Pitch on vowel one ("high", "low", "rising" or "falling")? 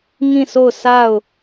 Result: falling